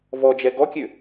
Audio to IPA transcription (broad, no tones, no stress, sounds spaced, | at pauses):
v ɔ d͡ʒ ɛ ɡ ɔ kʲ ø